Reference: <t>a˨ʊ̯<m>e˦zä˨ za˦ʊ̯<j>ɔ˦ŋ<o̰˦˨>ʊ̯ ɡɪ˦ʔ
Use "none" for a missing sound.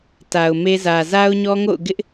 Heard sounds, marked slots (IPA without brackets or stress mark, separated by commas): t, m, ɲ, o̰˦˨